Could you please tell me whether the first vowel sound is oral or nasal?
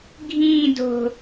nasal